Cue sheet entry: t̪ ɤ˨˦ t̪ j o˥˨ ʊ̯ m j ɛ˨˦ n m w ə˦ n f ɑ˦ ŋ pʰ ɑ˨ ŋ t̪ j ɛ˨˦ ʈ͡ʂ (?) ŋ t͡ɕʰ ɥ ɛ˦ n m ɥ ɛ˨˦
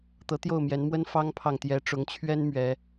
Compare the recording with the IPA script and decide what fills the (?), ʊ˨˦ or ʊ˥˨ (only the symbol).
ʊ˨˦